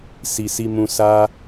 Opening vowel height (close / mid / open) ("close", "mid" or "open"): close